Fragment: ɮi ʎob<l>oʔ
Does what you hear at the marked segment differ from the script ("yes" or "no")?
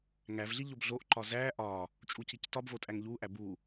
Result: yes